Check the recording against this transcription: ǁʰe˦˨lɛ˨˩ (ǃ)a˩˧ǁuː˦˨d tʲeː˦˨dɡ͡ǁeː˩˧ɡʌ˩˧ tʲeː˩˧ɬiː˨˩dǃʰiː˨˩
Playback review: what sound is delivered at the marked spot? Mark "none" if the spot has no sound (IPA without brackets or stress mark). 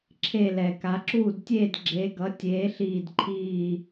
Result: k